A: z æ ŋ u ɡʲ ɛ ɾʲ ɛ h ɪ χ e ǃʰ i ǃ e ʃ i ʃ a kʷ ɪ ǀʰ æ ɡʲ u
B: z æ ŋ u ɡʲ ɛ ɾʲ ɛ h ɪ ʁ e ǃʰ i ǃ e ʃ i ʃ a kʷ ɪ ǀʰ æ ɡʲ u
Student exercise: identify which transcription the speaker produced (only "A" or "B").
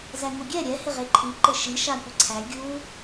B